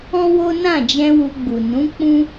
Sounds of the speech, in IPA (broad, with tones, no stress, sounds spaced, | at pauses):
ɔ̃˦ w o˦ n ã˦˨ d͡ʒ ɛ̃˧ w u˧ ɡ͡b u˨ n ũ˨˦ k͡p ũ˦